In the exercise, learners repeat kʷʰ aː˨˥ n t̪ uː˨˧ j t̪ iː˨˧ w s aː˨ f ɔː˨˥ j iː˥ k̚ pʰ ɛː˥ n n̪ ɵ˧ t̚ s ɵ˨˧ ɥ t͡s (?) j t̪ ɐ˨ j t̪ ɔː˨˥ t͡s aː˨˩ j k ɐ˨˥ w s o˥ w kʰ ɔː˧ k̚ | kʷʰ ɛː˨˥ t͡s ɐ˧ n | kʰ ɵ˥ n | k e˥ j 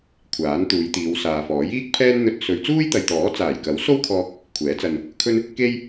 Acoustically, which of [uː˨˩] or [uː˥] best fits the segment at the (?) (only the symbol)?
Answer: uː˥